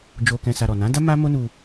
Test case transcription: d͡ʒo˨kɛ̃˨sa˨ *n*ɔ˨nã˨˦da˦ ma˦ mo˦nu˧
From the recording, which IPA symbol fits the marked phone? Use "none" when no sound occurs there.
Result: ɾ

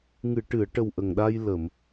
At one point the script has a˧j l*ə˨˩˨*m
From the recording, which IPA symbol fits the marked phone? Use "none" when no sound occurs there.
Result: ə˨˩˨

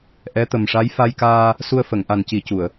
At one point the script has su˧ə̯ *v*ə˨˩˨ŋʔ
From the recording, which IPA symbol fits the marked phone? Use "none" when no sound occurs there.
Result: f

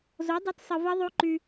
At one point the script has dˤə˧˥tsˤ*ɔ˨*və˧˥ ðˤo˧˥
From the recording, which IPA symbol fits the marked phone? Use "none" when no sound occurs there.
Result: ə˨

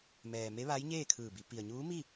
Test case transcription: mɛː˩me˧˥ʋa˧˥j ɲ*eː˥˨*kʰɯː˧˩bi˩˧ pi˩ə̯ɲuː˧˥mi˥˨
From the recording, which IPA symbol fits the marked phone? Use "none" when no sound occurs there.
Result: eː˥˨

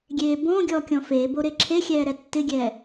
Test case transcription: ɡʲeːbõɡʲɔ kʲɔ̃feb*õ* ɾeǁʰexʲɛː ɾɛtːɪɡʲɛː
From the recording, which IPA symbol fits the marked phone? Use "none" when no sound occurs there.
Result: o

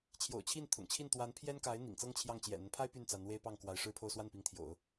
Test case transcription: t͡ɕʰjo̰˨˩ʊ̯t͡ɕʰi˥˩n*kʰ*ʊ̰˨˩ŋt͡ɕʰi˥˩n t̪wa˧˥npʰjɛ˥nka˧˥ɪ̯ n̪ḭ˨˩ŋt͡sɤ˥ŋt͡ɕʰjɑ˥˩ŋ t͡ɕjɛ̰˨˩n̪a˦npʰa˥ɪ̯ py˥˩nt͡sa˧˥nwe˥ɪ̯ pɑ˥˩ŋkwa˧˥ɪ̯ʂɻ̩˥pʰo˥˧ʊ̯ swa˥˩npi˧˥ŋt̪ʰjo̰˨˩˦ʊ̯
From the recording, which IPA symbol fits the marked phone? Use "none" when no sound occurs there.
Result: t̪ʰ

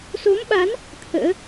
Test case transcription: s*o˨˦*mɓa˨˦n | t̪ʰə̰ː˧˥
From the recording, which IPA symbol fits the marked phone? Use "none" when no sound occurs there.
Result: o˨˦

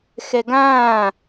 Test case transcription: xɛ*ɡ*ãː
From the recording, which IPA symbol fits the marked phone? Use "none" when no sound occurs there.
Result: ɡ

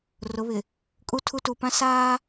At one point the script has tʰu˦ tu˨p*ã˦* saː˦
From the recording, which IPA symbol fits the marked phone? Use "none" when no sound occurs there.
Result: ã˦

